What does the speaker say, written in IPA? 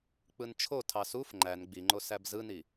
k͡p ɯ n t͡ʃʰ o tʰ ɑ s u f ŋ͡ǃ æ n ɡ͡b i ŋ͡ǃ o s æ b z ɯ n i

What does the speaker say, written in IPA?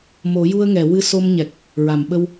m o˨˩˦ j u˧ ə̯ ŋ ɛ˨˩˨ w ɨ˧ s o˧ m ɲ ɛ˨˩ k̚ | ɹ a˨˩˨ m ɓ ə˧ w

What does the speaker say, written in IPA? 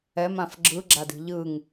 ɛ m ã f ɡ͡ǁ ɯ ɡ͡ǁ a d i̤ ʎ ɯ ŋ

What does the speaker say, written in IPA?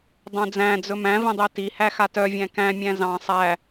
dˤ œ̃ d͡z æ̃ d͡z ɵ m æ̃ v ĩ dˤ i t i h æ x a t œ vʲ æ̃ k æ̃ mʲ æ̃ z ɑ̃ sˤ æ

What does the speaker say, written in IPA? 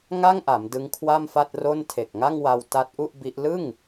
ŋ a˥˩ ŋ ʔ a˩˦ m d ɯ˦˥ ŋ kʰ w a˥˩ m f a˥˩ t̚ r o˥˩ n tʰ e˨˩ k̚ ŋ a˥˩ ŋ w a˧ w t a˦˥ t̚ ʔ u˥˩ ʔ b i˦˥ ʔ l ɯ˥˩ ŋ

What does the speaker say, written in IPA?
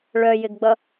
ɭ œ j ɪ ɡ ɡ͡b ʌ

